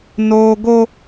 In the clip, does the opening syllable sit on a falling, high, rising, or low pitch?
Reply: high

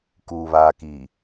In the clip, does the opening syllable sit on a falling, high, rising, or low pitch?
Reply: low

